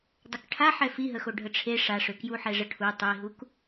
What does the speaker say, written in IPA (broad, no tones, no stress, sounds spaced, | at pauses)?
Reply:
dˤ ə k ʈʰ a ħ ɛ f i ɦ ə x o ɖʱ ə ʈ͡ʂʰ e ʂ a ʂ ø k j u ħ ɛ ʐ ə ʈʰ u tˤ i ɦ u k